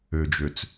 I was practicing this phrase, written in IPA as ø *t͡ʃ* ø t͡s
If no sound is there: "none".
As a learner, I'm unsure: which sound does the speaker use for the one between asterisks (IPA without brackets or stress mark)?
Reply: d͡ʒ